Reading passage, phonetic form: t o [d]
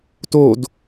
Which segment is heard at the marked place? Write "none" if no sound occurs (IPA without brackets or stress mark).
d